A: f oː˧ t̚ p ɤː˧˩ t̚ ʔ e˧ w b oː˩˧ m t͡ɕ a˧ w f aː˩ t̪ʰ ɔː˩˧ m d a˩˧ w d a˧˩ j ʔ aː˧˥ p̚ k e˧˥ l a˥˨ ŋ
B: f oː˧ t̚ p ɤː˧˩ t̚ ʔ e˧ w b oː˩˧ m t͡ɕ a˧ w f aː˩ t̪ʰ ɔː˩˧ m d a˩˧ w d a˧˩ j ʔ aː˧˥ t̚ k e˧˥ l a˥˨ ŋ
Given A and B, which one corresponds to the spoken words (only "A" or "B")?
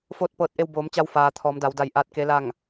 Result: B